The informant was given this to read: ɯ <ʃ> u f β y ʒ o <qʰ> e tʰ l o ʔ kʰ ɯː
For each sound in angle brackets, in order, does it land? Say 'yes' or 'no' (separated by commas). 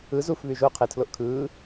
no, yes